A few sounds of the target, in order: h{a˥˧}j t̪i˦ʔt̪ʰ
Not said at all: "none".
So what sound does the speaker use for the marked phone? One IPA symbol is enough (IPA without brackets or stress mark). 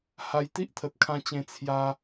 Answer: a˧